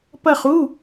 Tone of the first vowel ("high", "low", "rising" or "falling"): falling